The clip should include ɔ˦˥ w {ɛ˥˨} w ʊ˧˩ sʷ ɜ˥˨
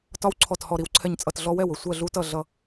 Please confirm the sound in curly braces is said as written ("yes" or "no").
yes